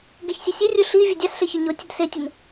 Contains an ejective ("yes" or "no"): no